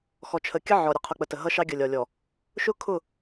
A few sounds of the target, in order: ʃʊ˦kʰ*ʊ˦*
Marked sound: incorrect: ʊ˦˨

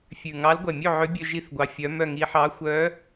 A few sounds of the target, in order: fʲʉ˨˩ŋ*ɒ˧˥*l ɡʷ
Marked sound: incorrect: ɑ˧˥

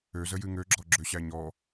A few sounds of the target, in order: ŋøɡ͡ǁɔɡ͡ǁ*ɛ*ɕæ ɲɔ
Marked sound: incorrect: ø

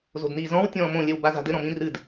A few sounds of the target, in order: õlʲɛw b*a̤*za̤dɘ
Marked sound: incorrect: a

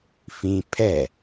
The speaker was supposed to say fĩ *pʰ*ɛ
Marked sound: correct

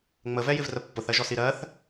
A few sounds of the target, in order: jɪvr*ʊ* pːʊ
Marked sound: incorrect: ə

